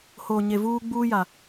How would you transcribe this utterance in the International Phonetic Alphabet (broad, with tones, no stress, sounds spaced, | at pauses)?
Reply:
h oː˨ ɲ e˨ v uː˦ ɡ͡b uː˦ j a˨